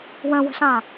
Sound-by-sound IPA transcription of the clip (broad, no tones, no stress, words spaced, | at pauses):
wə̃wə̤ɬã